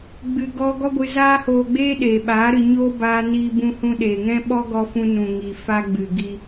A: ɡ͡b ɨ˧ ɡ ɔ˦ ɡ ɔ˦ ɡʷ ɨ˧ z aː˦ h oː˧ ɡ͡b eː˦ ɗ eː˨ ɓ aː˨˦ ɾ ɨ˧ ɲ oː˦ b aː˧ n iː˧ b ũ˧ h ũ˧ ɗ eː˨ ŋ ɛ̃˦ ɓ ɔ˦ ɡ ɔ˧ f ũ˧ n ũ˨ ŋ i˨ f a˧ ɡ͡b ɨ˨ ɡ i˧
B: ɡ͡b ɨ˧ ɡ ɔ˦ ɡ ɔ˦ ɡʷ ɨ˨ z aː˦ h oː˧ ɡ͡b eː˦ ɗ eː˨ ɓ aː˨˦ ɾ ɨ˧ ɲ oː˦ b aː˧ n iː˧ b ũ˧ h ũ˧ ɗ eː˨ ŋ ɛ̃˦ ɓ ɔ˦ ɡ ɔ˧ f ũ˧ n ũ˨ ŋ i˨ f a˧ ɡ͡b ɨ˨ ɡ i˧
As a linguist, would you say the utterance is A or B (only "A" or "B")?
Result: A